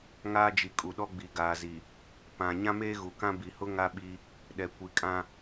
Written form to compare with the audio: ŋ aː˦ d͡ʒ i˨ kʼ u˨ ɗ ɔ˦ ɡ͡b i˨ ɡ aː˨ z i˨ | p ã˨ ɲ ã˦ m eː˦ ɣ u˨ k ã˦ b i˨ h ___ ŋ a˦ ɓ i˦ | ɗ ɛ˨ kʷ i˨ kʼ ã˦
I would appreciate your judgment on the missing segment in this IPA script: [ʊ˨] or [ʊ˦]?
ʊ˦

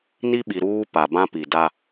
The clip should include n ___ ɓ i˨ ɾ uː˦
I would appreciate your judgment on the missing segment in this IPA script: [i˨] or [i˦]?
i˦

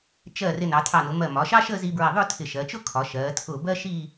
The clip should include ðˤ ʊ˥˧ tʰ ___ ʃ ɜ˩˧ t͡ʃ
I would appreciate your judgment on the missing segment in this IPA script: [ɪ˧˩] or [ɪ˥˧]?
ɪ˧˩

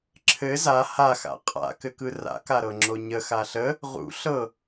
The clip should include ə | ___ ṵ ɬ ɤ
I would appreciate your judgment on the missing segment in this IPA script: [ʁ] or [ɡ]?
ʁ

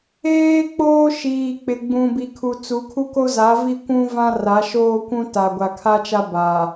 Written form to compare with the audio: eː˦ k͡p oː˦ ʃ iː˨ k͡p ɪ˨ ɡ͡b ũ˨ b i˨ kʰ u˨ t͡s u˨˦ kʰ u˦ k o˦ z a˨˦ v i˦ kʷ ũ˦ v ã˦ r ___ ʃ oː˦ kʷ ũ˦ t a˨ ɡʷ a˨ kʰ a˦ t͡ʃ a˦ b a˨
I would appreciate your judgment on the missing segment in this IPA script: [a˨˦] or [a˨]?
a˨˦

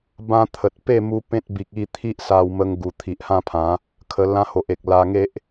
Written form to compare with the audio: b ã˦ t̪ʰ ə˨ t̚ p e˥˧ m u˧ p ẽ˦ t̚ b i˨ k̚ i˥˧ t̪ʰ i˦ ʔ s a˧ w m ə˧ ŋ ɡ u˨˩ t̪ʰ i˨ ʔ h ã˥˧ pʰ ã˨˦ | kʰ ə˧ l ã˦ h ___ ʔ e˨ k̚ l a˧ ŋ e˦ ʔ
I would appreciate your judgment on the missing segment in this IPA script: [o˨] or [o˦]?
o˨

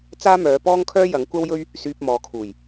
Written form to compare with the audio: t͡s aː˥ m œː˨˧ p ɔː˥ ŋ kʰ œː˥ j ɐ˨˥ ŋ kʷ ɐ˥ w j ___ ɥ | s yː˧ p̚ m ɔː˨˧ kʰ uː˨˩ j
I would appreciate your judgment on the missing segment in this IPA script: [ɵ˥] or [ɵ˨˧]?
ɵ˥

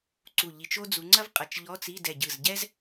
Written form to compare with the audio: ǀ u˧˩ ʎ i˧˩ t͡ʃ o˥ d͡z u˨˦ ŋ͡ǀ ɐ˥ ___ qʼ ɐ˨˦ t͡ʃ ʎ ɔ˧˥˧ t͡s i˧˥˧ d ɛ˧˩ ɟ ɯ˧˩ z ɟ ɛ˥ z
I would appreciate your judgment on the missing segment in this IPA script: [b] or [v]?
v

